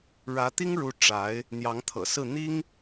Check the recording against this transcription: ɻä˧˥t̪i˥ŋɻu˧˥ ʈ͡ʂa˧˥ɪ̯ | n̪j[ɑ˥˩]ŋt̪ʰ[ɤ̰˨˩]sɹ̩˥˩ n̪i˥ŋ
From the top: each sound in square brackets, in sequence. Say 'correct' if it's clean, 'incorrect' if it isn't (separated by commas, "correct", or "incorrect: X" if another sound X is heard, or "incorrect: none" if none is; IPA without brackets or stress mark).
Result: incorrect: ɑ˧˥, correct